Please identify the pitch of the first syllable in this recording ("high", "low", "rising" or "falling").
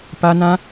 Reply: high